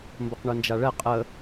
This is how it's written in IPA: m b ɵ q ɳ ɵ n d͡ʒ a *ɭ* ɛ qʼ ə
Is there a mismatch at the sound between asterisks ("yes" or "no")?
no